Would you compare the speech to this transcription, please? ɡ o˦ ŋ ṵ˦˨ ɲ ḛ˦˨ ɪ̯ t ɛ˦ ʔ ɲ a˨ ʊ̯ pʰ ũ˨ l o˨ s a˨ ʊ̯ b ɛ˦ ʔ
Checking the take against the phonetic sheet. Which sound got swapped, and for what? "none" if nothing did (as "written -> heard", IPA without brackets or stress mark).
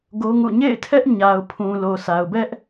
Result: t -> tʰ